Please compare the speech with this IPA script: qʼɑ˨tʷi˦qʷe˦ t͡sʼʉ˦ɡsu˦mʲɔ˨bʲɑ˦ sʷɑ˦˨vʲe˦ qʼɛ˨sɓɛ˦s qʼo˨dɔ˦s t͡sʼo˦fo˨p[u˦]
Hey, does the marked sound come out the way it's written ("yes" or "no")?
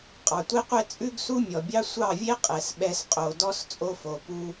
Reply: yes